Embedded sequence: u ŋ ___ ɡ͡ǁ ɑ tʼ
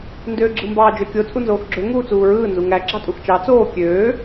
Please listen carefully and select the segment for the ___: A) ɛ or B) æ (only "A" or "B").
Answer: B